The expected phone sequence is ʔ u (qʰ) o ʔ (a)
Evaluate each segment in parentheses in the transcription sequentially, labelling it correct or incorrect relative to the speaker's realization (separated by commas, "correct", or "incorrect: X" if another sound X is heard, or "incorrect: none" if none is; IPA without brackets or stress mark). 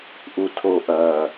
incorrect: tʰ, incorrect: ɐ